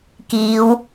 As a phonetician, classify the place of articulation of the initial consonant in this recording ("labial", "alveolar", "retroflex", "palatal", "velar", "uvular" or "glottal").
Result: velar